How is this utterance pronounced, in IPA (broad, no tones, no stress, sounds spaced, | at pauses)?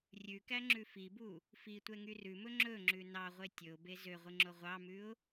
rʲ ʉ k æ ŋ͡ǁ ʉ f i b u | f i tʷ ɛ ŋ y r ʉ m ɵ ŋ͡ǁ ɵ ŋ͡ǁ ʉ n ɑ ʁʷ e tʲ ɵ ʊ̯ b e z ø ʁʷ i ŋ͡ǁ o ʁʷ ɑ m ʉ ʊ̯